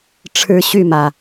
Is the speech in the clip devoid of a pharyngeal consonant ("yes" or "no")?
yes